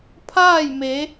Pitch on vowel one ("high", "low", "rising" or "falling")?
falling